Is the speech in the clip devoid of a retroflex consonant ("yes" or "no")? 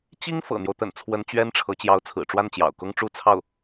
no